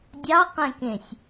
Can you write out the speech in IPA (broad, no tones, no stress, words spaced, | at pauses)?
dʲɑqɛ̃kẽsʲ